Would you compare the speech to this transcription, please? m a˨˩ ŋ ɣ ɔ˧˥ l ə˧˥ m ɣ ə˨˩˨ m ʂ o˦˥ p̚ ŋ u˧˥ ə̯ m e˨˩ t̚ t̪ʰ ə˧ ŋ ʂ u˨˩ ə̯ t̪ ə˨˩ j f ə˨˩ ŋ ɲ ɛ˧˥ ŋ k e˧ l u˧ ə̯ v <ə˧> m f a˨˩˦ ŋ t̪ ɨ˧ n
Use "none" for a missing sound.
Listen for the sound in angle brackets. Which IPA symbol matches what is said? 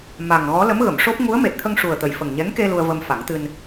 ə˧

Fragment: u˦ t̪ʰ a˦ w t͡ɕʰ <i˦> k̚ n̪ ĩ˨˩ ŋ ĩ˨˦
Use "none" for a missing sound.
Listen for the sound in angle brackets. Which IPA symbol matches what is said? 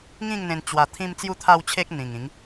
e˦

